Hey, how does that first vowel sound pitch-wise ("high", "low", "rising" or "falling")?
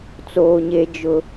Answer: high